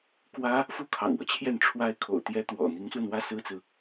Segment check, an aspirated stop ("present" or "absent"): present